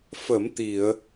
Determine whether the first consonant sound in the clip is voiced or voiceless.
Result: voiceless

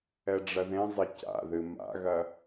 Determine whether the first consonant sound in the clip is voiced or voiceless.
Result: voiced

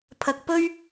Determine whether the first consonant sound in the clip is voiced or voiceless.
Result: voiceless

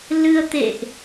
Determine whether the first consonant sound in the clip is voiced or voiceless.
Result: voiced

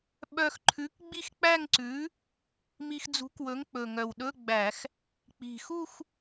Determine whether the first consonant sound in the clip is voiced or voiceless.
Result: voiced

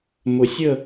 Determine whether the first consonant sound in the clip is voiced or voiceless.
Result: voiced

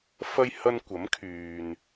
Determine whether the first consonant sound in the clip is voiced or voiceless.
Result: voiceless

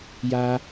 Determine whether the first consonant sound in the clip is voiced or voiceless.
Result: voiced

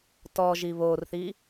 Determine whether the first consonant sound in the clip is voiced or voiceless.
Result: voiceless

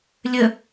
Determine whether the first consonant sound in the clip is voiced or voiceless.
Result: voiced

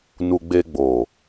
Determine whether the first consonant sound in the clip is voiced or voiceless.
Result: voiced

